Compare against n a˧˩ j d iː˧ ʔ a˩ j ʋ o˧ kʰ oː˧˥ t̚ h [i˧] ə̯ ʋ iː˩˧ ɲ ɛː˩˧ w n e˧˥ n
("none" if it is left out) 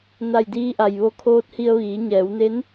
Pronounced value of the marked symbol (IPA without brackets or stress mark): i˧